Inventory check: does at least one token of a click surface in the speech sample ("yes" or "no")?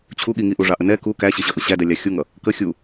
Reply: no